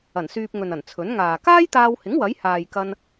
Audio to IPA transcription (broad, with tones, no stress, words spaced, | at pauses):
ɐ˨˩nsyː˧p̚ŋɵ˨nɐ˨˩n t͡sʰɵ˨˥nŋaː˨ kaː˥jt̪aː˧whɪ˨˥ŋ wɐ˨˥jhaː˨jkɐ˧n